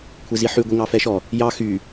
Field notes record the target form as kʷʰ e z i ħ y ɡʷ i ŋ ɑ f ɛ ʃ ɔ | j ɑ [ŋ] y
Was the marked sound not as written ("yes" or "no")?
yes